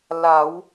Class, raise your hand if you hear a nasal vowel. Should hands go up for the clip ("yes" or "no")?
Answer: no